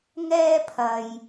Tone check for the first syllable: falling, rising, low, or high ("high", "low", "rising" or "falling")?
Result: high